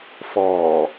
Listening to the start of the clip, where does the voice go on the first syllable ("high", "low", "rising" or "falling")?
low